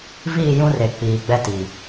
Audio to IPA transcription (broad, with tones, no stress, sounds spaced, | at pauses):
v iː˦˨ j ũ˦ r e˨ k͡p iː˨ ɡ͡b ɛ˦ t i˨